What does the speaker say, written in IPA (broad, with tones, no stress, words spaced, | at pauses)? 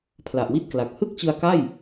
pʰla˨˩ʔwi˥˩t̚kla˨˩k̚ hɯ˥˩k̚t͡ɕɯ˧a̯ka˥˩j